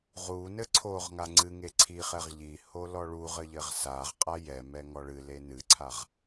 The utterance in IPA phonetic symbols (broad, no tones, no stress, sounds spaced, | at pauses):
ʁ u n ɘ ǀʰ o ʁ ŋ a ŋ͡ǀ ɨ ŋ e ǀʰ i χ ɛ ʁ ʎ i h o l ɔ ɭ u ʁ ɘ ʎ ɘ ʁ s a ʁ qʼ a j ɛ m ɛ ŋ ɔ ɭ ɨ l e n ɨ ǀʰ a ʁ